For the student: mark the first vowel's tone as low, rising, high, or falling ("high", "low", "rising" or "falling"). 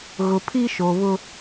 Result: low